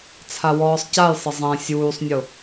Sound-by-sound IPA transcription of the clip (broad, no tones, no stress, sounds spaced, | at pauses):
t͡sʰ a w ɔː sˤ c a j sˤ ɪ zˤ ɛ̃ sʲ uː sˤ nʲ ʊ